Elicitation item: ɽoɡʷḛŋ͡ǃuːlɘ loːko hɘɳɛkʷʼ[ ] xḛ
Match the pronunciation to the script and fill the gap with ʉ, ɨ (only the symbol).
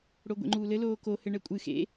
ɨ